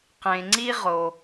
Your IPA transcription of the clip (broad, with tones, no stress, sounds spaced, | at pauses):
q ẽ˩ ŋ͡ǀ i˦ ʁ o˨